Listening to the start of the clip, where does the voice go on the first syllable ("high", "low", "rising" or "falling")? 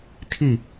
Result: falling